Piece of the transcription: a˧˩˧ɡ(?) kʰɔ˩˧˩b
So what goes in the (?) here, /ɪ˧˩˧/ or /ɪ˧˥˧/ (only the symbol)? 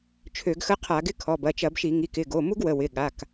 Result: ɪ˧˥˧